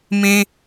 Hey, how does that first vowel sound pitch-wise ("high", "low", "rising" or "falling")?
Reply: high